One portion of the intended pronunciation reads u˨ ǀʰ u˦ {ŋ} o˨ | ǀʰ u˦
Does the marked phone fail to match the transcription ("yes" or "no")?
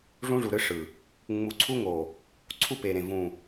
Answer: no